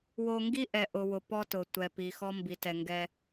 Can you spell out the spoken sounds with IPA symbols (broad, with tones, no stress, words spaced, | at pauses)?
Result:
wo˦ ŋɡi˦ʔɛ˨ ʔʊ˨wʊ˨ pɔ˦tʊ˨tʷɛ˨ pi˨xɔ˦mbi˨tɛ˨ ŋɡɛ˦